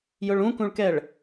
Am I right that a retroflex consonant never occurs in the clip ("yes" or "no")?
no